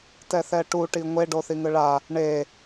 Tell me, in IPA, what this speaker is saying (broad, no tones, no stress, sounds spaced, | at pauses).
t ɛ θ ɛ ʈ u ʈ i ŋʷ e ɖ o θ i ŋ ɯ ɭ a | ɳ e